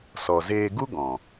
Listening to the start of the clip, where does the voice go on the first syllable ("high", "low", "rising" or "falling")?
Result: low